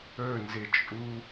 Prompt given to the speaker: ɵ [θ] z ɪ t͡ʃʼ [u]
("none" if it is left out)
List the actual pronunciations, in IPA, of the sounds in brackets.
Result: n, u

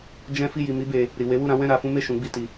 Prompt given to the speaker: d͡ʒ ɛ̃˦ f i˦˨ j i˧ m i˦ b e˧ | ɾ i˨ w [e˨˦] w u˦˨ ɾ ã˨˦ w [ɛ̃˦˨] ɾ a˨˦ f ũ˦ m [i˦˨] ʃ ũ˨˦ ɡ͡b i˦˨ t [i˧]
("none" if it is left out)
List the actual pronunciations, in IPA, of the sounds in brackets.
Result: e˨˦, ɛ̃˦˨, e˦˨, i˧

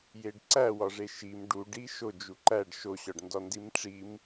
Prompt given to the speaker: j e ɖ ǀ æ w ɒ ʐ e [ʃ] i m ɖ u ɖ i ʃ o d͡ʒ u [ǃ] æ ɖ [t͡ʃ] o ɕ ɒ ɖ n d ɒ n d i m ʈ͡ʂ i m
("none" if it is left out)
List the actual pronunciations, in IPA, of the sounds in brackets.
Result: ʃ, ǃ, ʃ

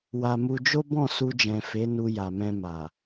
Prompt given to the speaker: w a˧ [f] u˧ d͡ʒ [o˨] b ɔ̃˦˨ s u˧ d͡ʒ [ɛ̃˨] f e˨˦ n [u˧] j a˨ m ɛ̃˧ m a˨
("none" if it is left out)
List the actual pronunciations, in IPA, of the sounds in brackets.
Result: m, o˦, ɛ̃˨, u˧

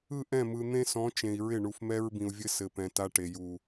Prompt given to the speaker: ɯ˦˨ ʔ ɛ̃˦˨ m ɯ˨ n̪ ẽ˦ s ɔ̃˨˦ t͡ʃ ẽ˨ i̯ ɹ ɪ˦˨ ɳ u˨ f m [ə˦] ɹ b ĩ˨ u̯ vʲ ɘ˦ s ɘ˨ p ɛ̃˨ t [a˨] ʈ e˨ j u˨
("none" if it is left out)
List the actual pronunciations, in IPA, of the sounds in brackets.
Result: ɛ˦, a˦

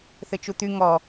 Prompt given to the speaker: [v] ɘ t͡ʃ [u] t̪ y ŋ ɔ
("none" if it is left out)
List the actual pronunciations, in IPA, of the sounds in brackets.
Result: θ, u

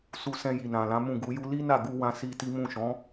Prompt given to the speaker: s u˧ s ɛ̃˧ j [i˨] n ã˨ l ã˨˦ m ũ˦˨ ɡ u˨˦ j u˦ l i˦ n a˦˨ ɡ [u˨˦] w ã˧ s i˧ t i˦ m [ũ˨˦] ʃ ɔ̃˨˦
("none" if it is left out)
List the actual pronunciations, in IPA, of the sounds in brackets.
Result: i˨, u˧, ũ˦˨

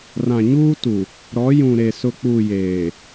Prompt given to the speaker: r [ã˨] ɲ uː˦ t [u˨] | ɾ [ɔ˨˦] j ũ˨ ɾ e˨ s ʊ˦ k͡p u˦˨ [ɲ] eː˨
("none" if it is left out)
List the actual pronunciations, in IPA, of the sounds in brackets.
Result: ã˨, u˨, ɔ˨˦, j

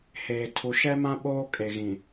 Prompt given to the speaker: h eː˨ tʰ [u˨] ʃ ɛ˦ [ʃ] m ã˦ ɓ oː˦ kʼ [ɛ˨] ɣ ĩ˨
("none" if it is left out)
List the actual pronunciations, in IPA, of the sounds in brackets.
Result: u˨, none, e˨

